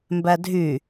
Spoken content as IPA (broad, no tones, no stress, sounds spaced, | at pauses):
m b æ dʱ y